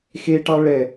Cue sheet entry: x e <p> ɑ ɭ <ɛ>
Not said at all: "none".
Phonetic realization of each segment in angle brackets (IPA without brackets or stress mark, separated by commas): ʈ, ɛ